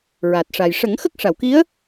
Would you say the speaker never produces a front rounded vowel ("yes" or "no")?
yes